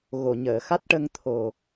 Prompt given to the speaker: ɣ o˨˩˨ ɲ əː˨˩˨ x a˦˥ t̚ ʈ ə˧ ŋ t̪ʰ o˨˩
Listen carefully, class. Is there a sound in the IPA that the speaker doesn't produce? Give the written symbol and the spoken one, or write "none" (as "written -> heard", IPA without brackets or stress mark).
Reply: none